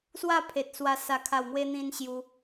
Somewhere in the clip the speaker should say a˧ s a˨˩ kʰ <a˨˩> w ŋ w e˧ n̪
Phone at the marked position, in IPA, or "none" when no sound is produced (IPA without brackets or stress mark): a˨˩